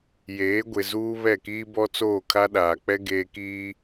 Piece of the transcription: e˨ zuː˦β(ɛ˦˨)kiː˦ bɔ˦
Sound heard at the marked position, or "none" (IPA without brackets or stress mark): ɛ˦˨